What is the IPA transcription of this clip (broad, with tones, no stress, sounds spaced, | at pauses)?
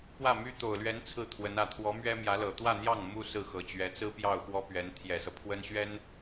p w ä˥˩ m y˥ t̪ o˨˩ ʊ̯ l ɥ ɛ˧˥ n t͡sʰ ɹ̩˥˩ t̪ʰ w ə˧˥ n ä˨˩ t̪ʰ w ɔ˧˥ m ɥ ɛ˥ m j ä˧˥ l ɤ˨˩ t̪ w ä˥˧ n̪ j ɑ˥˩ ŋ m u˥ s ɹ̩˥˩ x ɤ˨˩ t͡ɕ ɥ ɛ˧˥ t͡s ɹ̩˥ p j ɑ˥˩ ʊ̯ x w ɔ˥ p ɥ ɛ˧˥ n t̪ʰ j ɛ˨˩ s ɤ˦ pʰ w ə˥ n ɕ ɥ ɛ˥ n